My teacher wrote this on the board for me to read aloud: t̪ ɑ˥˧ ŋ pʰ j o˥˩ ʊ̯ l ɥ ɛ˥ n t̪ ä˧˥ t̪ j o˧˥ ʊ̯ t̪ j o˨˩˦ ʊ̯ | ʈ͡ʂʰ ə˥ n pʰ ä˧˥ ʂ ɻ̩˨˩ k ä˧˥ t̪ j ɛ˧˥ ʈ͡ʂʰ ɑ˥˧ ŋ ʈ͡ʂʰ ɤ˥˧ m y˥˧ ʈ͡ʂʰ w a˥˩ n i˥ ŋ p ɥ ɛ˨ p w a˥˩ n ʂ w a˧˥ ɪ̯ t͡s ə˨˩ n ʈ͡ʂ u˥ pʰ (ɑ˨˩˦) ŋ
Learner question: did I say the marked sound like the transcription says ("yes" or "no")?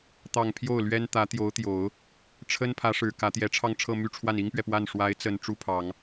yes